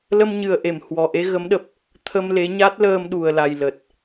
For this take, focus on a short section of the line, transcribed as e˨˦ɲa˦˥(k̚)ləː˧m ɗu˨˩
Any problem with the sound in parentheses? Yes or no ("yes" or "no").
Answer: yes